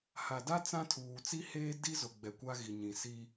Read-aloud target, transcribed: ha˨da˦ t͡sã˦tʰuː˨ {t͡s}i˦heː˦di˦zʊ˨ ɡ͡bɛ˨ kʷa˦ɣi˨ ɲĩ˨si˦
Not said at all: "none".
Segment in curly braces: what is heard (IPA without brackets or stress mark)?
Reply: t͡s